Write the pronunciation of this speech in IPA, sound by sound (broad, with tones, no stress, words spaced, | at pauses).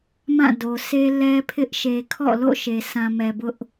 mã˦˨do˨sʰe˦ lɛ˦pʰɪ˦ʔ ʃe˨kʰɔ̰˦˨lo̰˦˨ ʃe˨sʰã˨mɛ˨ bʊ˦ʔ